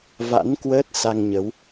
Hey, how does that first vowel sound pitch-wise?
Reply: rising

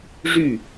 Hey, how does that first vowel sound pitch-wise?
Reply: falling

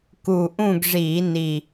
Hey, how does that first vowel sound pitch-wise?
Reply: low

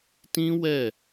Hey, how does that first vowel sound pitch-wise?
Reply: high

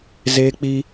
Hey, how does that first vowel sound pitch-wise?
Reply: high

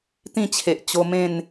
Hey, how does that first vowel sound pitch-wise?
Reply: falling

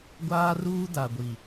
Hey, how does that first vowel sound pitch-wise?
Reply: high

